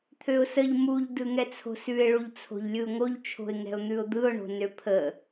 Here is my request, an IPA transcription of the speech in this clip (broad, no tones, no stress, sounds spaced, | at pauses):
t̪ʰ ø ʊ̯ s ə ʎ m u ʎ d ɯ ŋ ɛ t͡sʰ o̤ s ʉ ɪ̯ ɭ u ʎ t͡sʰ o̤ ʎ lʲ ɯ ʊ̯ ŋ o ʎ t͡ʃʰ o̤ ɪ̯ ŋ ɛ̤ ʊ̯ n̪ ʉ ʊ̯ d̪ ɯ ʊ̯ ɳ o̤ n ø pʰ ə